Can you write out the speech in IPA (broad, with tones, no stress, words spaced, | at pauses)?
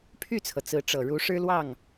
pʰy˥˩t͡sʰɤ˩ t͡sɹ̩˧˥ʈ͡ʂɤ˨˩ ɻu˧˥ʂɻ̩˥ lwɑ˥˩ŋ